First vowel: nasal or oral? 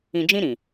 nasal